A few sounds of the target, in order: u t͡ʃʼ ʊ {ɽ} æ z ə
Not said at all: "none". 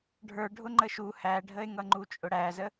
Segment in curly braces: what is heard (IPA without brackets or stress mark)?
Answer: ɽ